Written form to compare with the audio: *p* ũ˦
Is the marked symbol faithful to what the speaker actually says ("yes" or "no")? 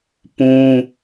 yes